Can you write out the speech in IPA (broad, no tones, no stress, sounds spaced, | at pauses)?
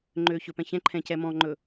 ŋ͡ǃ øː ç ɵ p ɛ̃ ç ɛ̃ ǃʰ ɛ̃ c ɛ m ɔ̃ ŋ͡ǃ ɵ